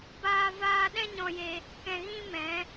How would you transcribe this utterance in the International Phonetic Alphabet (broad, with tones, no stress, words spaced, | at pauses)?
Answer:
baː˦ vaː˦ ɗɛ̃˦ɲɔ̃˧je˧ | kɛ̃˧ɣĩ˦mɛ̃˨˦